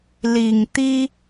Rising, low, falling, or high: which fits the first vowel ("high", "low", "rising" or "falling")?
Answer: low